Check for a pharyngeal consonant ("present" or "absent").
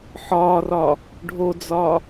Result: present